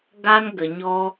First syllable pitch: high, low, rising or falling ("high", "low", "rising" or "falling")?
high